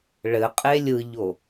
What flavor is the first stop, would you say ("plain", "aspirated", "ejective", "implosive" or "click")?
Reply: ejective